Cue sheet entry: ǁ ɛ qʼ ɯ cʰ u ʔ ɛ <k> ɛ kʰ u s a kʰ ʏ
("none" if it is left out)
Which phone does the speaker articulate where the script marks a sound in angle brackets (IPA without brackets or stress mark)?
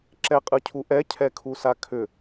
cʰ